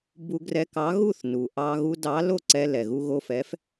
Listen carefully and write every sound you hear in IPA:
b u˧ ɡ r ɛ˧ k ɑ˨˥ ɣ u˥˩ θ n u˩ ʔ ɑ˧ ɣ u˧ d ɑ˨˥ l o˥˩ ǀ ɛ˧ l ɛ˩ ɣ u˧ ɣ o˧ f ɛ˨˥ f

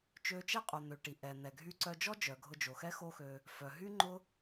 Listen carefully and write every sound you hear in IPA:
t͡ʃ ø˧ t͡ʃ ɛ˥ qʼ o˩ n̪ ø˩ ʈ i˩ ʔ ɛ˩ n̪ ɛ˩ ɡʱ y˧ ǀ œ˧ d͡ʒ ɔ˥ d͡ʒ œ˩ ɡʱ ʊ˧ d͡ʒ o˩ x ɛ˥ x o˥ x ø˧ | f œ˩ ɦ y˥ ŋ͡ǃ ʊ˥

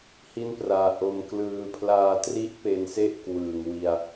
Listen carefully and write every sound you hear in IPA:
h i˥˩ n p r aː˧ ʔ o˧ m k l ɯː˧ pʰ l aː˧ t r i˦˥ ʔ p e˧ n s e˥˩ ʔ k w ɯː˨˩ ŋ w i˧ a̯

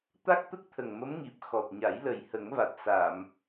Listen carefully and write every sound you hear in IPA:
t̪ a˦˥ k̚ t̪ ə˦˥ k̚ t̪ʰ ə˨˩ ŋ m ə˧˥ m ŋ i˨˩ p̚ x ɔ˨˩ t̚ ɲ a˨˩˦ j l ə˨˩ j h ə˨˩˦ ŋ v a˨˩ t̚ s a˨˩˨ m

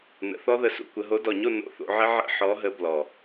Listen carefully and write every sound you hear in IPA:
n ə̰˨˩˦ θ ɔ˦˥ ð ə˨˦ s ṵ˥˨ kʷ ə˨˦ ɦ o˨˦ d ɔ˨˩ ɲ o˥˨ n o̰˧˥˧ θ o̰˨˦ ʕ ə˦˥ ʕ ə̰˧˥˧ ħ ɔ˨˦ ɦ ə˨˦ b l ɔ˨˩

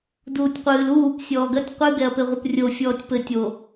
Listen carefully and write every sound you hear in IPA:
d uː tʲ qʷ ɨː l uː p sʲ ɔː ɡ ɐ tʲ qʷ ɨ ɡ ɛ ɐ̯ p e ʁʷ ɨ p rʲ o fʲ ɔː tʲ p ɘ tʲ o

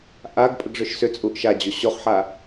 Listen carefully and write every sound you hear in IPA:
ʔ a ɡ pʼ ə ɡ ʐ ʏ ʃ s ʏ t͡sʼ u ʔ ʃ a d͡ʑ o ɕ o χ ħ a

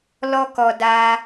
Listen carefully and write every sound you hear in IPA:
l ɔ˦ k ɔ˧ d a˧

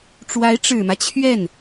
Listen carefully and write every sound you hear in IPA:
ʈ͡ʂ w a˧˥ ɪ̯ ʈ͡ʂ ɻ̩˨˩ m ä˦ t͡ɕʰ ɥ ɛ˥˩ n

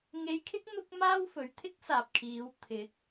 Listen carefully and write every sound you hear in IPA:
ŋ e˧ j kʰ ɪ˥ k̚ n̪ ʊ˥ k̚ m aː˥ w f ɵ˨ ɥ t̪ʰ ɪ˥ k̚ s aː˨ p̚ kʰ iː˨˧ w t̪ʰ ɪ˨˥ k̚

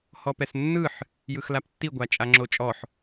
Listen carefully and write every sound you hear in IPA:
h ɔ p ɛ s nː ɯ ħ | j ɯ x l a p tː i ɡʷ a t͡ʃʼ a ŋ͡ǁ o t͡ʃʼ ɔ ħ

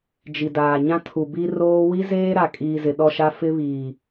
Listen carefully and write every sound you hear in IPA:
d͡ʒ i˨ d aː˨ ɲ ã˦ tʰ u˨ b i˦ r oː˦ w i˦ z eː˦ ɾ a˨ kʼ iː˨ z ɪ˨ ɗ ɔ˦˨ ʃ a˦ f ɪ˦ β iː˨

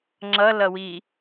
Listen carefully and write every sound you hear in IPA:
ŋ͡ǁ ʌ l ʌ w i

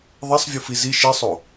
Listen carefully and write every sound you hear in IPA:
ðˤ ɛ sˤ vʲ u f i z i ʃ i sˤ o

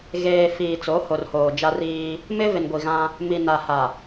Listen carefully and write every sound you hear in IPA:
ɣ eː˨ f iː˨ t͡s o˨˦ h o˨ r h oː˨ d͡ʒ a˦ r iː˦ | m ɪ˦ v ɪ˨ n ɡʷ i˨ ɣ ã˦ | m i˨ n a˨ h a˨

